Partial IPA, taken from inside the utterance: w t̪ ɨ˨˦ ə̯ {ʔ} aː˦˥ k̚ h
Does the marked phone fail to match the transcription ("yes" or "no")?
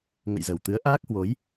no